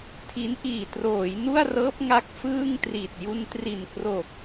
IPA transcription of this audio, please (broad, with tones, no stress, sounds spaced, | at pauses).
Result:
tʰ i˦˥ n ʔ iː˨˩ t r oː˩˦ j n u˥˩ a̯ r ɤː˦˥ p̚ ŋ a˦˥ k̚ f ɯː˥˩ ŋ t r i˨˩ t̚ j u˧ n t r i˨˩ n k r o˨˩ k̚